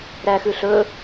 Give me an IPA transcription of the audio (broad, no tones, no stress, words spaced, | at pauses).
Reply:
ɾæxʉɬɵ